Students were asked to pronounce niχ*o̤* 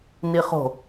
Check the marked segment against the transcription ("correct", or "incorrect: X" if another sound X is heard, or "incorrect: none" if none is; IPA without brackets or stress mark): correct